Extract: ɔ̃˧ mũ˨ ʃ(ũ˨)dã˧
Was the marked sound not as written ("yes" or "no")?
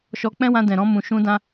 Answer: yes